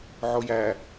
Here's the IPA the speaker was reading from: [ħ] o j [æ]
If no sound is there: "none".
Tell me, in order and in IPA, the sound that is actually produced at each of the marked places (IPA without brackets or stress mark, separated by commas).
ʕ, æ